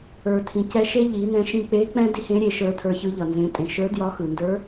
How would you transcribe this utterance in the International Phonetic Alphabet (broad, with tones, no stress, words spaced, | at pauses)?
ə˞˩tʰĩ˩cɛ˧ʃe˥ ʎi˩˧nɛ̃˧ ʃĩ˧k͡pe˧˥k͡pɛ̃˥ di˥hẽ˧˥ɾʲe˩˧ ʃə˞˧˥tʰə˞˧çɯ˧˥ʎʌ˩ nzẽ˩˧tʼẽ˩ʃə˞˧˥djɒ˧˥ xɯ˩ndə˞˧˥